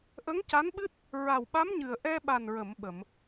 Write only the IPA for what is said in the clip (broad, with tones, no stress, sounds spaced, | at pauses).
ʔ ə˧˥ ŋ c a˧˥ n ɓ ɨ˦˥ t̚ | ɹ a˨˩ w ɓ a˧˥ m ɲ ɨ˨˩ ə̯ ʔ ɛ˧ ɓ a˨˩ n ɹ ə˨˩˨ m ɓ ə˨˩˨ m